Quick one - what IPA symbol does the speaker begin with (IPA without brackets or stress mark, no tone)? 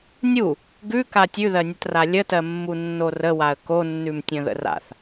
nʲ